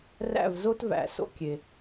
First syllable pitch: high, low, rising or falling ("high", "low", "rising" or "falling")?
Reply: falling